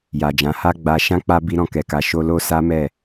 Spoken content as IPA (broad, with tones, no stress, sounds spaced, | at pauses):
j a˨ d͡ʒ ã˨˦ h a˦ ɡ͡b a˧ ʃ ã˦ k͡p a˦ b i˦ ɾ ɔ̃˦˨ k ɛ˧ k a˧ ʃ o˧ l o˦ s a˦ m ɛ˦˨